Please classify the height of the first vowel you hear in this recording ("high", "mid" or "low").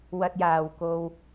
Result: low